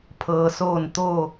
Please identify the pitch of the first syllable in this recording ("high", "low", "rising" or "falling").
low